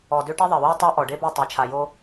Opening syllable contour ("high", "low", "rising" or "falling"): low